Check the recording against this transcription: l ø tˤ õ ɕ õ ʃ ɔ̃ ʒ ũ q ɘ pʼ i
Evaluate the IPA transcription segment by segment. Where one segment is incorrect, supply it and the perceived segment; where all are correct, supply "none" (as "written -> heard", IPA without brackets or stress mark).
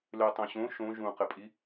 ɔ̃ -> õ